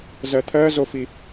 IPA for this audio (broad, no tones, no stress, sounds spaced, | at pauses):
z ɜ t̪ʰ ɜ z o f i